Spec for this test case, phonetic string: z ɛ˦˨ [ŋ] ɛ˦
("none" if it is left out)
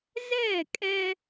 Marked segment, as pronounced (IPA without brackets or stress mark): kʼ